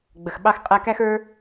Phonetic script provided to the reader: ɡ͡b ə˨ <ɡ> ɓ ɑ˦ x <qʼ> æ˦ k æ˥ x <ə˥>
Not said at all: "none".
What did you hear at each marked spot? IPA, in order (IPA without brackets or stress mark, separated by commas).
x, qʼ, ə˞˥